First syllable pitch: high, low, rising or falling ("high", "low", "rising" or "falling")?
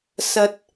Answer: low